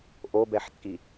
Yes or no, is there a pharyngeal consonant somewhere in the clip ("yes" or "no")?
yes